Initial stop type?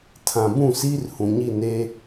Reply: aspirated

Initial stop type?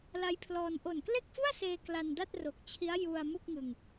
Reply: aspirated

